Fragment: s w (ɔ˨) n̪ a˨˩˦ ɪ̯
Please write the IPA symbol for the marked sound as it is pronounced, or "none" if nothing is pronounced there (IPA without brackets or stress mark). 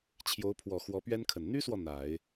ɔ˨